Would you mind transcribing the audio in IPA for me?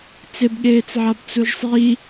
t͡s ɪ b ɠ eː t͡s ʕ a b t͡s u ʒ sˤ i

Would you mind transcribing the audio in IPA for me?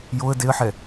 j o ə̯ d e ə̯ ħ ɛ

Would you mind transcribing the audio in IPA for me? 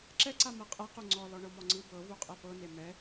ǁ ɛ ǀ a m ɤ qʼ ɛ q u ŋ͡ǀ ɔ l ɔ ɳ ɤ m ɔ ŋ͡ǀ ɯ b ɤ v u qʼ ɛ p ɤ n e m ɛ

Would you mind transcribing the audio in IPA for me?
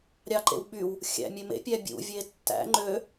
ɾʲ ɑ ǃ ḛ w ɓ y w | xʲ æ̰ mʲ ø m ḛ pʲ æ bʲ ṵ vʲ e tː æ̰ ŋ͡ǃ ø

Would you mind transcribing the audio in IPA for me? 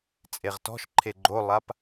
t͡sʼ e ʁ t ɔ̤ ʃ ǃʰ e ɡ͡ǃ o lˠ a p

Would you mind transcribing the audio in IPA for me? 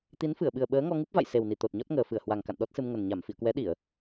t̪ i˨˦ n f ɨ˧˩ ə̯ ɓ ɨ˨˩ ə̯ ɓ əː˨˦ ŋ ɔ˧ ŋ ɨ˦˥ p̚ v a̰˧˨ j s e˨˩ w n i˧˩ t̪ o˨˩ t̚ ɲ ɔ˦˥ t̚ ŋ əː˨˩ f ɨ˧˩ ə̯ h w a˨˩ ŋ k a̰˧˨ n ɗ ɔ˦˥ t̚ s ɨ˧ m ŋ ə˨˩ n ɲ a˧˩ m f ḭ˧˨ ə̯ k w ɛ˨˦ ɗ i˧˩˨ ə̯

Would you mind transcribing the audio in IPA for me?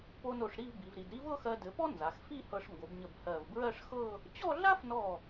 p o˧ n o˧˩ ʂ ɾ i˥˧ v b i˩˧ v ɾ i˩˧ d ɾ i˥ v ɤ˥˧ x ɜ˧ d ɘ˩˧ p ɔ˥ n z a˩˧ x f i˥˧ h ɤ˧ ʂ ŋ ɡ o˩˧ b ɲ ə˧˩ b h ɜ˧˩ v b ɹ ɜ˥˧ ʂ x ɤ˥˧ | t͡ɕ ɔ˥˧ ɮ a˥ f n ɔ˧˩

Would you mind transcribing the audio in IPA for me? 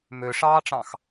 m ø ʂ ɑː ʈ͡ʂ ɑ̃ x

